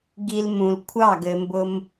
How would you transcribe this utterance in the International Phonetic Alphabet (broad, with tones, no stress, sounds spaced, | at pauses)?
ɡ i˧ l m ũ˨ l kʷʰ ɑ˦˨ ɡ ɘ˧ m b ʊ˦ m